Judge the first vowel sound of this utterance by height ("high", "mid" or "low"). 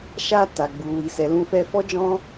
low